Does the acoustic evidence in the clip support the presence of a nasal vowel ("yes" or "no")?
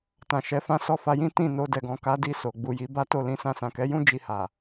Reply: yes